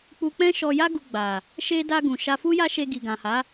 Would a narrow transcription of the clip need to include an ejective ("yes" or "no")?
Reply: no